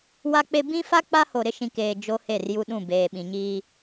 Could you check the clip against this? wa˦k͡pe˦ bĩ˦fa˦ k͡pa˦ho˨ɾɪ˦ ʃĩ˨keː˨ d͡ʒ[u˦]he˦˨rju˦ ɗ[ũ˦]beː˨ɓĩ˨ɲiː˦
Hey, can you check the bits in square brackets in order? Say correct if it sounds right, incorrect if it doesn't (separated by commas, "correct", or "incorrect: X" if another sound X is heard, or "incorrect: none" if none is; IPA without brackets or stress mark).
incorrect: o˦, incorrect: ũ˦˨